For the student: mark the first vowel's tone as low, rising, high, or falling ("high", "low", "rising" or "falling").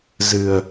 low